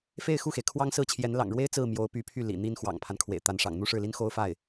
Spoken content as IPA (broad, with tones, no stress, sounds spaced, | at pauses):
f e˥˧ ɪ̯ x u˥˩ x e˩ ɪ̯ kʰ w ɑ˥ ŋ s ɹ̩˥˩ t͡ɕʰ j ɛ˧˥ n l ɑ̰˨˩ ŋ ɻ w e˥ ɪ̯ t͡s ɹ̩˥˩ m j o˧˥ ʊ̯ p y˧˥ pʰ y˥˩ l ḭ˨˩ n̪ i˥ n x w ɑ̰˨˩ ŋ pʰ a˦ n kʰ w ḛ˨˩ ɪ̯ t̪ a˧˥ n ʂ ɑ̰˨˩ ŋ n̪ u˥˧ ʂ ɻ̩˥˩ l i˥ n x o˥ ʊ̯ f a˥˩ ɪ̯